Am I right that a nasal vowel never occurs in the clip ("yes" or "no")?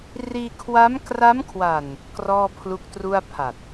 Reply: yes